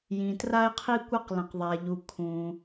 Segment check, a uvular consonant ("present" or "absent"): present